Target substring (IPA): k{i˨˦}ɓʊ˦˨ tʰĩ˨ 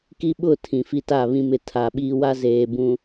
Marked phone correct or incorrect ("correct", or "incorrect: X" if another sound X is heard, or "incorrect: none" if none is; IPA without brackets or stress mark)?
incorrect: i˦